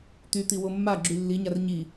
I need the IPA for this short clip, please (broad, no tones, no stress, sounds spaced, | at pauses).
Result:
t̪ y t̪ i w o mː a ɡ͡ǁ y lː i ɲ a r ɲ i